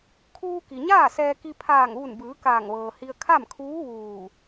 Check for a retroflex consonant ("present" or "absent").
absent